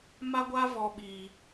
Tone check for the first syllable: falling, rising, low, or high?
high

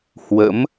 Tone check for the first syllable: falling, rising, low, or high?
rising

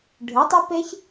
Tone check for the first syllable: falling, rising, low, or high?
rising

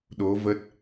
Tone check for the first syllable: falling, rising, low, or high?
rising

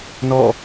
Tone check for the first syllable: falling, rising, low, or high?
falling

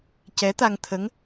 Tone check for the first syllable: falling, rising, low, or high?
rising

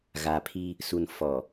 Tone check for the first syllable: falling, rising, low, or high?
low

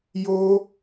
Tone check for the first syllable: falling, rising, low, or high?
high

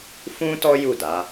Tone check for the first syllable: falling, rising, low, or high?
high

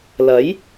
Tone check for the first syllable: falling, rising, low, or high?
rising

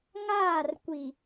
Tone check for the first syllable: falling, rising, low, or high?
falling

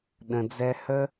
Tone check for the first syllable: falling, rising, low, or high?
low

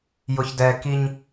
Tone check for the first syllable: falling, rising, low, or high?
low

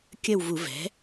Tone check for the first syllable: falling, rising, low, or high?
falling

